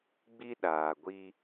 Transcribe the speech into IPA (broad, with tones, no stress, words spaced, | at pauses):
ɡ͡bi˦ɗaː˨ɡʷi˦